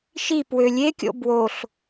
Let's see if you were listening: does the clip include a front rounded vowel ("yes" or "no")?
yes